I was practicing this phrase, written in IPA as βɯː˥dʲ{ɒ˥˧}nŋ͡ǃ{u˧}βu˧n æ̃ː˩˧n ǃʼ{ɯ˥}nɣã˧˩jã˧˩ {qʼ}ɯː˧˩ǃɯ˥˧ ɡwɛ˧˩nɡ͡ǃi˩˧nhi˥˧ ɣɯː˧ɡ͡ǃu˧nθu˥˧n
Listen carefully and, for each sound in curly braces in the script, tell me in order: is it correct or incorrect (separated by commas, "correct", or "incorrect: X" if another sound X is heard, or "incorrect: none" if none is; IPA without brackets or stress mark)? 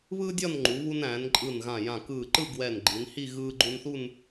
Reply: correct, incorrect: u˩˧, incorrect: ɯ˧˩, incorrect: k